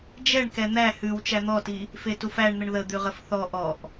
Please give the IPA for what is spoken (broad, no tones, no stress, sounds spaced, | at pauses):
d͡ʒ ɛ ɳ k ɛ n̪ æ h ʉ w t͡ʃ æ n̪ ɔ t i | f e t u f æ ɳ n̪ ə ɳ ð ə d̪ ʉ ʁ ə f θ ɔ ʔ ɔ ʔ